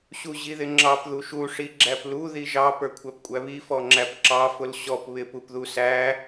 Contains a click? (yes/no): yes